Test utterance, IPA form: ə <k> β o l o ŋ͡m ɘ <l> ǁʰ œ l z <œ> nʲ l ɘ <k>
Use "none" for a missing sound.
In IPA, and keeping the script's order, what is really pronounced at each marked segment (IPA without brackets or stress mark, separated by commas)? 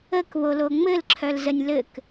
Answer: k, l, ə, k